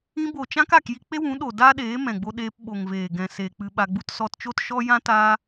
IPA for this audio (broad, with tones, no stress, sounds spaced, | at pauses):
ĩ˧ b o˨ t͡ʃ ã˦ k a˦˨ k j i˧ k͡p e˦ w ũ˨˦ ɗ o˨ d a˦ ɗ eː˨˦ m ɛ̃˨ ɡ͡b o˧ ɗ eː˧ p ɓ o˨ ŋ v eː˨ ɡ ɛ̃˨ s eː˨ k͡p ɨ˧ ɓ a˧ ɡ͡b u˦ t s ɔ˧ t t͡ʃ o˦ t ʃ ɔ˦ j ã˦ t aː˦